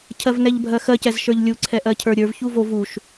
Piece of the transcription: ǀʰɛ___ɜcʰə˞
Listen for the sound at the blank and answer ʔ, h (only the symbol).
ʔ